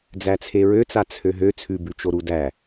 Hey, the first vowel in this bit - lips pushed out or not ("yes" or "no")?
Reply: no